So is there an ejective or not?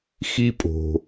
yes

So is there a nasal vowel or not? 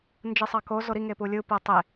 no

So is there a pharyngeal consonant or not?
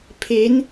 no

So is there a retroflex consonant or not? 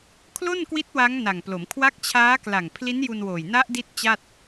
no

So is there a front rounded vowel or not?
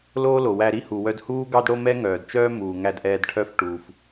yes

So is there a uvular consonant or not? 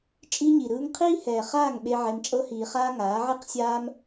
yes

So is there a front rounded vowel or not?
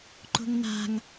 no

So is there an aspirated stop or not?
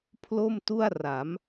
yes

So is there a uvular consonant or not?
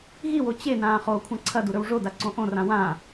yes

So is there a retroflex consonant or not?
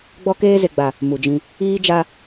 no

